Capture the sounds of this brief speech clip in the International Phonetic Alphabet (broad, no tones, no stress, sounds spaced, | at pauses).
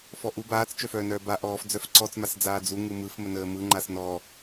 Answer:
f ɔ ʔ u b aː t͡s t͡ʃ œ f œː n œː b a ʔ ɔː f d͡z œ f ǀ ɔ t͡s m a s d͡z aː d͡z u ŋ ɯ m ɯ f m ə n əː m ɯ ŋ͡ǃ a s n ɔː